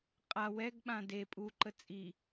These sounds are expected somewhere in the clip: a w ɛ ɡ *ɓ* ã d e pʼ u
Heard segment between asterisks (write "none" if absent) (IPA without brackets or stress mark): ɓ